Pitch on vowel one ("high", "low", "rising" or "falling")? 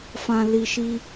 low